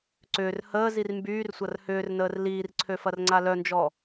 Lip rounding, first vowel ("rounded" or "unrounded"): rounded